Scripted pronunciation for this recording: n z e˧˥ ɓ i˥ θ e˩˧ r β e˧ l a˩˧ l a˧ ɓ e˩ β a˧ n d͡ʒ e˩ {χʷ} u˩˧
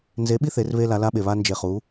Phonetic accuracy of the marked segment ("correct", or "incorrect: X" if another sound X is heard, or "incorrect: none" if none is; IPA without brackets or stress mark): incorrect: χ